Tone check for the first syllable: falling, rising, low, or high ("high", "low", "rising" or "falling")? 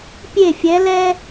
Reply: falling